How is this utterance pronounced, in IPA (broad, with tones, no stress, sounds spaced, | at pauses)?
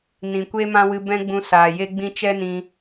n ĩ˨ kʷ e˦ m ã˦ w ɨ˧ b ɛ̃˦ ɡ͡b ũ˧ s aː˨ j e˦ ɡ͡b ĩ˦ t͡ʃ ɛ˦ n ĩ˧